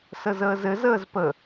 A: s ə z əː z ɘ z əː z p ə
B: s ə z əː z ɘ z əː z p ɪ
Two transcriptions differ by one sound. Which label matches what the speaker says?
A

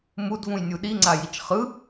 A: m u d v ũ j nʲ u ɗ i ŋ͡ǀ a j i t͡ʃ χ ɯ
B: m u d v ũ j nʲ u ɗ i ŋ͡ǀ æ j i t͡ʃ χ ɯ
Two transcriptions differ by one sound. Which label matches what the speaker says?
A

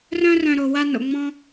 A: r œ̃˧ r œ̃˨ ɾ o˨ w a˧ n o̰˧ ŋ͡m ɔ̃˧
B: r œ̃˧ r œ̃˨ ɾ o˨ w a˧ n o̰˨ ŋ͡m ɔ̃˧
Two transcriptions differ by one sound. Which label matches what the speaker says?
B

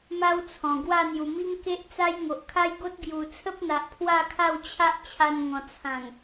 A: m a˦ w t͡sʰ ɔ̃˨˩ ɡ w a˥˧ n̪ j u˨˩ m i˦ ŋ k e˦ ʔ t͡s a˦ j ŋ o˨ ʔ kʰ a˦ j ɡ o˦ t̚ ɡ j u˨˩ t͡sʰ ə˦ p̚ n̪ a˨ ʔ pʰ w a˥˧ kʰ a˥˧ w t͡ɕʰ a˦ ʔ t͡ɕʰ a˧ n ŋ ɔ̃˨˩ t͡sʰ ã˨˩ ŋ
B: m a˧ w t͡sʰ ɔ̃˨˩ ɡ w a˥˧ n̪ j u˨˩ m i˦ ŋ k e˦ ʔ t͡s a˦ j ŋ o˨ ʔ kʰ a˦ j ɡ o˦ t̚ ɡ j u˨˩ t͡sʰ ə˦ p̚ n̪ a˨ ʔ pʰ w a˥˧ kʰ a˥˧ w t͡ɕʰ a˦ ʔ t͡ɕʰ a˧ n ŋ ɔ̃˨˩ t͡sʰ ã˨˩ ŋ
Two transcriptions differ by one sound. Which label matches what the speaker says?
A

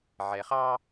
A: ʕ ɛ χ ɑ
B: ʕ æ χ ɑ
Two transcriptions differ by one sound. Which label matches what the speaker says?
A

